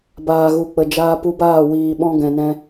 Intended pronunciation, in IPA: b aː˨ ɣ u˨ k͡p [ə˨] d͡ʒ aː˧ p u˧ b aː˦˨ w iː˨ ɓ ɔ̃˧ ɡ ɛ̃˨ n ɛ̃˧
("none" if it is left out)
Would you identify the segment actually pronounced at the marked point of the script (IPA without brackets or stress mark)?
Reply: ə˨